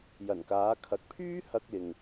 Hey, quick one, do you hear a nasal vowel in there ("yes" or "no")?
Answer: no